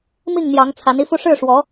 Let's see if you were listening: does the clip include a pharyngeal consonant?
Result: no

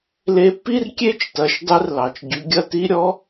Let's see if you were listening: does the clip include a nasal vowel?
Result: no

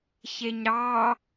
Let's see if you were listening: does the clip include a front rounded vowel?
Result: no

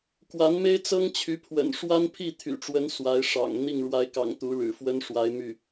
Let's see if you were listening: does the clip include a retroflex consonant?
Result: yes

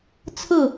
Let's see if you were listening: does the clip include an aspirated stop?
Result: yes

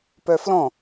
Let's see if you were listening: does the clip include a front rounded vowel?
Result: yes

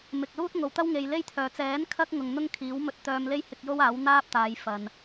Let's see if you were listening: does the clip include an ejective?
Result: no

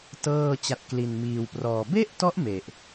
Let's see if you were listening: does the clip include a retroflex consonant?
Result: no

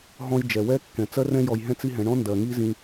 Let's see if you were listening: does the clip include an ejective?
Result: no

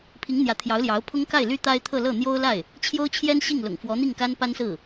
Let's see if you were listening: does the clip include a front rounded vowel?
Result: yes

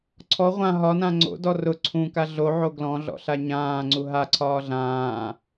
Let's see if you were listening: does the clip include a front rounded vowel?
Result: no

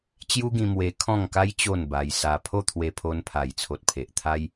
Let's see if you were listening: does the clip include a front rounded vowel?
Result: no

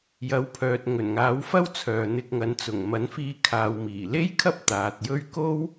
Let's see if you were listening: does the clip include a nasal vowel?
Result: no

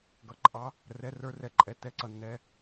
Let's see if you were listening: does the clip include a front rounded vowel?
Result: no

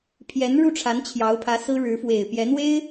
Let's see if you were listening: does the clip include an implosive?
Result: no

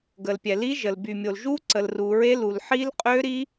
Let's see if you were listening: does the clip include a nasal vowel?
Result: no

